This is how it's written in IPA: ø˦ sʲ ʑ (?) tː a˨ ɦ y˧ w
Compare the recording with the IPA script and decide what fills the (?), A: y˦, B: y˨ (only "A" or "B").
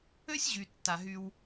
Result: B